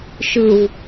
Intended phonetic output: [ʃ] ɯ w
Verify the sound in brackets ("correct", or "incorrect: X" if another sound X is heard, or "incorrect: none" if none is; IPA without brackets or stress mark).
correct